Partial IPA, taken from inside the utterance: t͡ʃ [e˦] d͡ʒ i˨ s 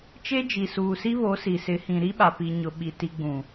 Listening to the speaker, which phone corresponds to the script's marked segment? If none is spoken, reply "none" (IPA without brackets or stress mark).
e˦